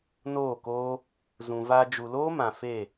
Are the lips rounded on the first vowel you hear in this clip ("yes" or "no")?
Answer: yes